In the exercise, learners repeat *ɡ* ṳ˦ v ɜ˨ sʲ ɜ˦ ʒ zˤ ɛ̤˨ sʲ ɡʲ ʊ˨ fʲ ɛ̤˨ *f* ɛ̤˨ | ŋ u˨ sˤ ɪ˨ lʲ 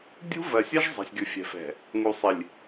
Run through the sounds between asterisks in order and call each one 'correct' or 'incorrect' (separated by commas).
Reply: incorrect, correct